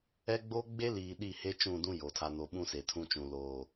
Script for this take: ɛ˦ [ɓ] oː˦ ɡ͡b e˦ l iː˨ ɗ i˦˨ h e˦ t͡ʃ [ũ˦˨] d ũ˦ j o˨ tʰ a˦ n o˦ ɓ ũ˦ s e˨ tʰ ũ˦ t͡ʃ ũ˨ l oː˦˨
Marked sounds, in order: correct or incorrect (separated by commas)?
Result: incorrect, correct